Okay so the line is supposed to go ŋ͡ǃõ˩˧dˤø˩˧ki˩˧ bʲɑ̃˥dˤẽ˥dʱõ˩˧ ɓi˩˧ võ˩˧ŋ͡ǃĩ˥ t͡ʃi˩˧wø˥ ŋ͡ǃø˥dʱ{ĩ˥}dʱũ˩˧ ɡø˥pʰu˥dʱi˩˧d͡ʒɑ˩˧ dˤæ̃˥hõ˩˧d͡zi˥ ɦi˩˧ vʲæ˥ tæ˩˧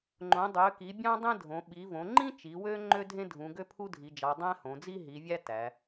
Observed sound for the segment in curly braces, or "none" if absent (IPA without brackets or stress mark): ẽ˥